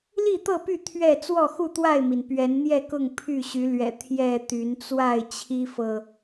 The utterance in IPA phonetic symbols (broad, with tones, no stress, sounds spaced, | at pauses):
l i˥˨ t̪ ɤ˥˨ p y˥˨ t̪ʰ ɥ ɛ˥˨ t͡s w ɔ˥˨ x u˥˨ t̪ w a˥˨ ɪ̯ m i˩ n p ɥ ɛ˨˦ n n̪ j ɛ˥˨ k ʊ˥˨ ŋ pʰ y˥˨ ɕ y˨˦ l ɥ ɛ̰˨˩ t̪ʰ j ɛ˥˨ t̪ y˨˦ n t͡s w a˥˨ ɪ̯ t͡ɕʰ i˦ f ɤ˨